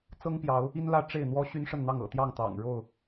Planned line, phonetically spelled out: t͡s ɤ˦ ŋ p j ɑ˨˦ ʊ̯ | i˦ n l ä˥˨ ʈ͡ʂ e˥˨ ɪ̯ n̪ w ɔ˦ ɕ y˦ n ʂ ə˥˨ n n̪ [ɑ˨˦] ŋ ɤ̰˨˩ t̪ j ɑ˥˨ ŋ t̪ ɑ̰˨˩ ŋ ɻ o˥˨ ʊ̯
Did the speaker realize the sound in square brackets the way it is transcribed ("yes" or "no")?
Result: no